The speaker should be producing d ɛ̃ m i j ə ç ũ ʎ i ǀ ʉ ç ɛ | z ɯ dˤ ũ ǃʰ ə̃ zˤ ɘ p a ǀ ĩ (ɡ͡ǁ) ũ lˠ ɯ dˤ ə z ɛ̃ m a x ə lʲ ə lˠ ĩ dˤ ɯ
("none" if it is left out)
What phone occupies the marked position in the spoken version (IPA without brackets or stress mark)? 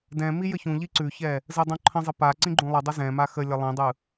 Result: ɡ͡ǃ